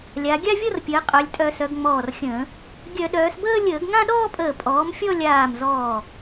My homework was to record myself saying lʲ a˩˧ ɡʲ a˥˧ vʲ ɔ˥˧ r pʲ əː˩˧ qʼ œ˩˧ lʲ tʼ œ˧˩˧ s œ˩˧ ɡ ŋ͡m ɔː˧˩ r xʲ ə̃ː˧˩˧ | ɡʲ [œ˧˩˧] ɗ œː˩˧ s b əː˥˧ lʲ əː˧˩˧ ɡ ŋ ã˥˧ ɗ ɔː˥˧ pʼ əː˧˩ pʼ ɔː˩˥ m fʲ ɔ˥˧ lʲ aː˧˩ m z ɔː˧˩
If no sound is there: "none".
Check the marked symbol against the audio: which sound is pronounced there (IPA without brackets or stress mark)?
œ˧˩˧